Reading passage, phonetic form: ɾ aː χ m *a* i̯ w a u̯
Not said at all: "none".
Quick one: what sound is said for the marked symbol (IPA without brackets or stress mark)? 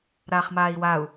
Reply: aː